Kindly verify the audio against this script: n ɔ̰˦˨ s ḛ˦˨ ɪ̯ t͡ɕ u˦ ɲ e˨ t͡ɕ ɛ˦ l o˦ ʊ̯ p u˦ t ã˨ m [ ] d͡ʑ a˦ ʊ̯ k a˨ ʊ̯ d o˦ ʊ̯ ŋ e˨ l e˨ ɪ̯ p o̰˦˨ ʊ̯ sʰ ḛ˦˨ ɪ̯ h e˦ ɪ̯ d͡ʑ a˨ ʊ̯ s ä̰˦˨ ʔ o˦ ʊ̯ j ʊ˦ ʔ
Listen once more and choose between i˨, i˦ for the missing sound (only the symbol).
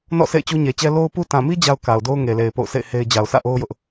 i˦